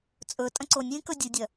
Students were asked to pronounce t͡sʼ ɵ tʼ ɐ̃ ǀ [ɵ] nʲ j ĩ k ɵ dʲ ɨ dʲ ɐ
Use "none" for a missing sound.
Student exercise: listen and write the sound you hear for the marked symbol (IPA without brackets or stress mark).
o